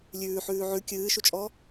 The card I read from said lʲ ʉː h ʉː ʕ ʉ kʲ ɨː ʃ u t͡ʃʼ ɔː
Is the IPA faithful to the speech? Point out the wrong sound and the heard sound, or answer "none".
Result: h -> ħ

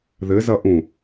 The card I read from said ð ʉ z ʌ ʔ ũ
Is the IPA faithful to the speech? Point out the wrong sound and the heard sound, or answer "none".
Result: ʉ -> ɘ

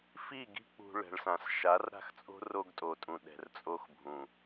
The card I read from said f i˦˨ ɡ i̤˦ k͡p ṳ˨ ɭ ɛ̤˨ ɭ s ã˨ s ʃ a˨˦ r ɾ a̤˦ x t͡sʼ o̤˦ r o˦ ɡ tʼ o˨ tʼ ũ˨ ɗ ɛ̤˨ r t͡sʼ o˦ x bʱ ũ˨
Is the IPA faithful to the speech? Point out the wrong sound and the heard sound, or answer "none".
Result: none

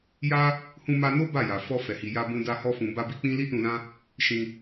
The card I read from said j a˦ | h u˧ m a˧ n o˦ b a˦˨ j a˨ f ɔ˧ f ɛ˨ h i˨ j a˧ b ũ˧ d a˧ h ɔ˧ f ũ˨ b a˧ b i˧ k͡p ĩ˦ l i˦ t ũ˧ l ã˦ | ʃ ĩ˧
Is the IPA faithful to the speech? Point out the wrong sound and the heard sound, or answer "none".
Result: u˧ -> ũ˧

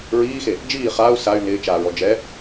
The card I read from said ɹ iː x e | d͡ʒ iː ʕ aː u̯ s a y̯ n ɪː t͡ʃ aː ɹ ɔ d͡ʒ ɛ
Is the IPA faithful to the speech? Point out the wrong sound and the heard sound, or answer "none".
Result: ʕ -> χ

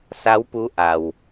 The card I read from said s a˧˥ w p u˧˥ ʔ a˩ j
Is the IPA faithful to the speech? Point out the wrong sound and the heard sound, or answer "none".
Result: j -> w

